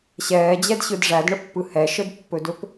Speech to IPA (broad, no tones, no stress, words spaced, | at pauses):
ɕɛːd͡ʑɛdɕɯd ʐædɳəpːɯ hɛʃədpːɵdɵp